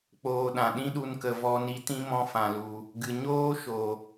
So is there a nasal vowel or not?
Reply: yes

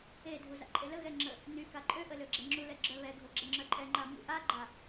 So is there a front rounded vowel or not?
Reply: yes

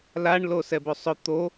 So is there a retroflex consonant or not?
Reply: yes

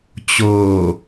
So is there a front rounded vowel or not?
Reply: no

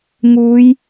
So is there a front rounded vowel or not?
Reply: no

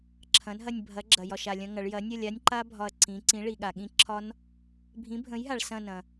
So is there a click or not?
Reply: yes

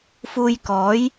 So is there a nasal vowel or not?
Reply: no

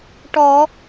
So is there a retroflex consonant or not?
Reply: yes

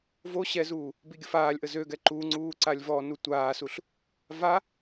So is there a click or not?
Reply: yes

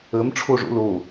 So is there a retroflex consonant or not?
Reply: yes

